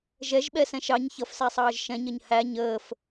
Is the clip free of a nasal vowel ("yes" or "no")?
no